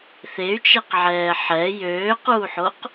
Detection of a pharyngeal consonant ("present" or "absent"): present